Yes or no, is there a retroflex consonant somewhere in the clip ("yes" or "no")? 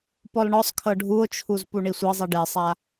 yes